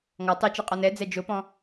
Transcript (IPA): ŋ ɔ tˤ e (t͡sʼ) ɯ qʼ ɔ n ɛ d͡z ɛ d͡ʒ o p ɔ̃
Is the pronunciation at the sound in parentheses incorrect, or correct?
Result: incorrect